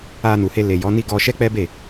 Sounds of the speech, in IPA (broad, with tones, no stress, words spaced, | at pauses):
a˧nu˨he˧ le˨jɔ˨˦ni˦ɡɔ˧ ʃɛ˦k͡pɛ˦be˦˨